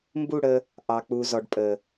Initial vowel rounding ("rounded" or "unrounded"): rounded